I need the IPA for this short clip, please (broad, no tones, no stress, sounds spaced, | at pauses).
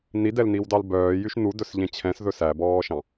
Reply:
n i d ɛ l n i w d ɑ l b œː j y ʃ n u d ɵ s ʎ ẽ t͡ɕʰ ɛ̃ s ð ɵ s æ b ɔː ʃ ɑ̃